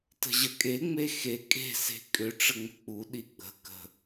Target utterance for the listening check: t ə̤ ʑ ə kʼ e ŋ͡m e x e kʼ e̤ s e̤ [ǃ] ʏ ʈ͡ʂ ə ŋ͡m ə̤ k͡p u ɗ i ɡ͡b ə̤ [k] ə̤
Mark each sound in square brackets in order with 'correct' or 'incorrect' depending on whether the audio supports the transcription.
incorrect, correct

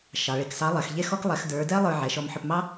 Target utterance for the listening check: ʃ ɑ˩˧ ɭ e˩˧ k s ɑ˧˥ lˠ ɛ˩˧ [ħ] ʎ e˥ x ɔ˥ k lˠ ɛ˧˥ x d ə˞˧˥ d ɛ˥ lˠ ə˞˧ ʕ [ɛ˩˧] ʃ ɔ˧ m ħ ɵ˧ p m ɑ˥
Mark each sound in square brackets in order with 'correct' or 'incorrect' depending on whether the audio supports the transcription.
incorrect, correct

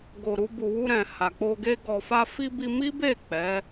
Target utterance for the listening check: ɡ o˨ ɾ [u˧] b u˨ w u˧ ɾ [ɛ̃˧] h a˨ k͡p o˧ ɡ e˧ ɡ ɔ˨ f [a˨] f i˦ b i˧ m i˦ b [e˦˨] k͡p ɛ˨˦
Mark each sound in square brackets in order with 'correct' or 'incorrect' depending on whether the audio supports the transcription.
correct, incorrect, incorrect, correct

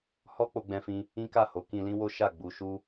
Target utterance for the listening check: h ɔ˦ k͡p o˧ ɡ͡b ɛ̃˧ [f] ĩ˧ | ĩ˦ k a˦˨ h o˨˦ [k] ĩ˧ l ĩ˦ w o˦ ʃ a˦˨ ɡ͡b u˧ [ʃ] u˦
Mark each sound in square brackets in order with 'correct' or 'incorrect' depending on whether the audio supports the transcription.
correct, correct, correct

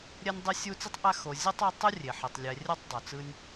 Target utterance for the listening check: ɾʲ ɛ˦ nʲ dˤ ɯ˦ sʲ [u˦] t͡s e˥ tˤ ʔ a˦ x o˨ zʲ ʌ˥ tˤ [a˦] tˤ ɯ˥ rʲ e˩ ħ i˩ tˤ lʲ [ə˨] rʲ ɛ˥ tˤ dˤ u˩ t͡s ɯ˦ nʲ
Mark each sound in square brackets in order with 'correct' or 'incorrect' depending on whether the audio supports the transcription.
correct, correct, incorrect

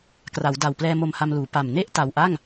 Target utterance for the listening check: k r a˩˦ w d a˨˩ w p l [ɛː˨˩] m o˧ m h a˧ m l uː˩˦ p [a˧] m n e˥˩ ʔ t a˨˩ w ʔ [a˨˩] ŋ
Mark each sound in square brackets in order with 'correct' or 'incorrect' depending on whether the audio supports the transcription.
incorrect, incorrect, incorrect

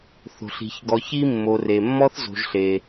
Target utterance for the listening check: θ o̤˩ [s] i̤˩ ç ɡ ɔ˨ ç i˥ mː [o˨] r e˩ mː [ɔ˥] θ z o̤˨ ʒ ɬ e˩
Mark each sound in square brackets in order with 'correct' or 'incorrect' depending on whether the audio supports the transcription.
incorrect, correct, correct

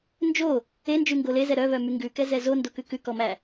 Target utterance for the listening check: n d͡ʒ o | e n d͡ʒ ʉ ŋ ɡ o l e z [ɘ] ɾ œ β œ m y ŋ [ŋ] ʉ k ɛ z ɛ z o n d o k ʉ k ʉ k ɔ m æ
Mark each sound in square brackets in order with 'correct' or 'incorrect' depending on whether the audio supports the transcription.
incorrect, incorrect

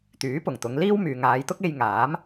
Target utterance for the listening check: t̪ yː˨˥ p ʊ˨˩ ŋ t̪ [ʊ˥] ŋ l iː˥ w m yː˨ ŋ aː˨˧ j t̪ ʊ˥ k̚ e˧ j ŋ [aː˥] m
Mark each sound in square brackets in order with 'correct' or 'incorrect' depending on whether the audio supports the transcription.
incorrect, incorrect

